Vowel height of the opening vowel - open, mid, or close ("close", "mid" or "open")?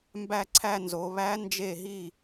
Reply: open